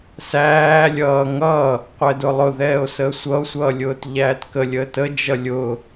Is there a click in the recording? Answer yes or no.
no